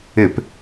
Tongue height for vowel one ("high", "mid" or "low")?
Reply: high